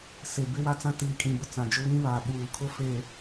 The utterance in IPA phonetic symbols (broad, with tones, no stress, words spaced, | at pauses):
se˨bɪ˦wa˦t͡sã˦ tiː˨kʼĩ˨bʊ˨ t͡sã˨d͡ʒʊ˦βĩ˦βaː˨ ɓuː˨kʰʊ˦ feː˨